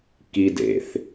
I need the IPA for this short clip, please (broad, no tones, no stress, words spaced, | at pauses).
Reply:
kid ḛθ